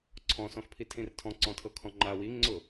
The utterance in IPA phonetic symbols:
ǀʰ ɔ̃ s ɔ̃ x pʰ i tʰ ĩ r tʰ ɔ̃ ǀ ɔ̃ tʰ ɤ kʰ ɔ̃ ŋ͡ǃ a w i ŋ͡ǀ ʊ

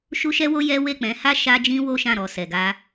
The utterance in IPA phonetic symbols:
ʃ u˦ ʃ ɛ˦ w o˦ j ɛ˦ w e˦˨ k͡p ɛ̃˨˦ h a˦ ʃ a˦ d͡ʒ ĩ˦ w o˦ ʃ ã˦˨ ɾ ɔ˨ s ɛ˨ ɡ a˧

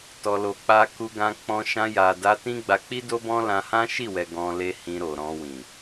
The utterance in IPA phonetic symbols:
t ɔ˨ l o˨ k͡p a˧ k u˧ ɡ ã˧ k͡p ɔ̃˧ ʃ ã˧ j a˨ d a˧ t ĩ˦ ɡ͡b a˧ k͡p i˦ d o˦ b ɔ̃˦ l ã˧ h ã˦ ʃ i˦˨ w ɛ˨ ɡ ɔ̃˧ l e˦ h ĩ˧ ɾ o˨ ɾ ɔ̃˧ w ĩ˨

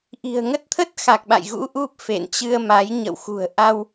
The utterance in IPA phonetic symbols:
ʔ i̤˨˩ ə̯ ŋ ə˦˥ t̚ t̪ʰ ə˦˥ t̚ x a˨˩ k̚ ɓ a̰˧˨ j ɣ ṵ˧˥ ʔ u˦˥ p̚ f ḛ˧˨ n t͡ɕ ɨ˧ ə̯ m a˨˦ j ɲ ə̰˧˨ w x ṳ˨˩ ə̯ ʔ a˧ w

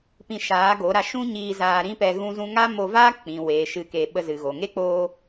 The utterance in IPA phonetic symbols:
p ĩ˧ ʃ aː˨˦ ɡ o˨˦ ɾ a˧ ʃ ũ˦ ɲ iː˧ z aː˧ ɾ ĩ˦ p ɛ˧ ɣ ũ˦ z ũ˦ ŋ a˦ m o˧ v aː˦ k͡p ĩ˨ w e˨ ʃ ɨ˧ k e˧ ɓ ə˧ z ɨ˨ ɣ o˨ ŋ e˦ k͡p oː˧

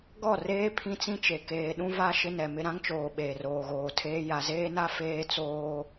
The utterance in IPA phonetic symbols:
ɡ ɔ˦˨ r eː˦ pʰ ĩ˦ t͡s ĩ˦ t͡ʃ e˨ k eː˨ ɗ ũ˦ v a˦ ʃ ɪ˦ n ɛ˨ m ɪ˦ ɾ ã˦ ŋ t͡ʃ oː˨ ɓ eː˨ r oː˨ ɣ oː˨ tʰ eː˦ j a˨ z eː˦ n a˦ f eː˦ t͡s oː˦

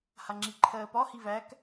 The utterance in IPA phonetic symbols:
h a ŋ͡ǁ i ǃʰ ɜː p ɒ h i v æ k

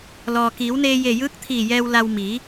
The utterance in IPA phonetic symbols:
l ɔː˩ k iː˩˧ w n eː˧ j e˧˩ j ɯː˧˥ k̚ t̪ʰ iː˧˩ j ɛː˧ w l a˧ w m iː˩˧

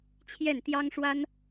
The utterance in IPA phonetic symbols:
t͡ɕʰ j ɛ˥˩ n t̪ j ɑ˥ ŋ ʂ w a˥ n

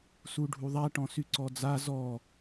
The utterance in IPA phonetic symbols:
s u ɖʱ u ðˤ a ʈ ɔ̃ s y ǀ ɔ d͡z a z ɔ

